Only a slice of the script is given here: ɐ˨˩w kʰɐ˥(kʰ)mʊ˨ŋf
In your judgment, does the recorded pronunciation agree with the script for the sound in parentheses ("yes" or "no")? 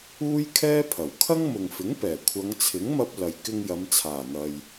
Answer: no